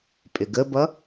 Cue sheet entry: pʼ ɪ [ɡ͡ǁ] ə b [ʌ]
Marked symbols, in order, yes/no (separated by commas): no, yes